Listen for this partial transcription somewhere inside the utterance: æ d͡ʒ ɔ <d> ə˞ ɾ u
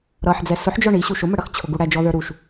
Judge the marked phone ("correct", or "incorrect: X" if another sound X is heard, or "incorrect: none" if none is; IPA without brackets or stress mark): incorrect: ð